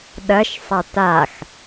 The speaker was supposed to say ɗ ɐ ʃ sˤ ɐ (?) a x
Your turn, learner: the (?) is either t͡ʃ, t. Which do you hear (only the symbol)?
t